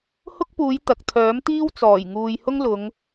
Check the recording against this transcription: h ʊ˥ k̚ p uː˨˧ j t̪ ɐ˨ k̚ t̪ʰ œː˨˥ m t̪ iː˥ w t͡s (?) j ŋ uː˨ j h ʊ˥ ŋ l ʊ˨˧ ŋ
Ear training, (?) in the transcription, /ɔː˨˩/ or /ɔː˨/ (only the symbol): ɔː˨˩